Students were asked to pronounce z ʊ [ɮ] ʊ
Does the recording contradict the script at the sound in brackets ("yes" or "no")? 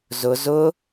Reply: yes